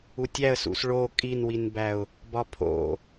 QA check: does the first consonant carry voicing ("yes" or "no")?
no